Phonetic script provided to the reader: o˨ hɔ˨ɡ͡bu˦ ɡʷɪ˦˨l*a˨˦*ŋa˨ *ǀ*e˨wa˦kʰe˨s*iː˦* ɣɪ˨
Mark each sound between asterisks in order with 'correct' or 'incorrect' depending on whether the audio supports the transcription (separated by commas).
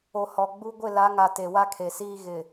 correct, incorrect, correct